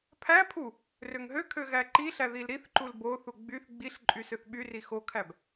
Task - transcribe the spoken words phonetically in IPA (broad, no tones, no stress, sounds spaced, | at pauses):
pʰ æ pʰ u | r ø ŋ ɦ ø kʰ ø ɣ æ ǃ i ɬ æ ð i l ɾ i θ ǃ u l b o θ u ɡ͡b y θ ɡ͡b i ɬ ǃʼ y s ø θ ɓ y r i x o kʰ æ b